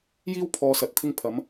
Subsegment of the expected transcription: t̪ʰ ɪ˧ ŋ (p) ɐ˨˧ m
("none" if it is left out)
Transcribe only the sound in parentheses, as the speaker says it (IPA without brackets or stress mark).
pʰ